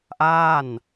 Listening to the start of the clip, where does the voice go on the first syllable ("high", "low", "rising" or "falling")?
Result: falling